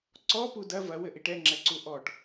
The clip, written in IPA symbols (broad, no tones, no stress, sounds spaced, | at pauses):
ǀ ɔ p u d ɐ v ɐ w ɘ ʔ i ʈ ɛ ŋ͡ǁ ɛ ǀ u ʔ ɔ ʈ